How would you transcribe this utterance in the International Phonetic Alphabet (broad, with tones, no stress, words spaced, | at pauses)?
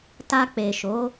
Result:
ta˧k͡pe˨ʃo˨˦